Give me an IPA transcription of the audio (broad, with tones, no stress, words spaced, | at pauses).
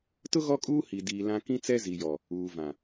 tʊ˦ ɣɔ˦kʼuː˦ hi˨ diː˨lã˦ kĩ˦t͡sɛ˦ zi˨jɔ˨ | uː˨vã˨